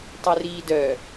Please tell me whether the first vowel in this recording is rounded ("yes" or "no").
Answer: yes